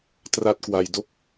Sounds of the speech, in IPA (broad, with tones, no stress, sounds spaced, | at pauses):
t r a˦˥ t̚ k w a˧ j d o˥˩ k̚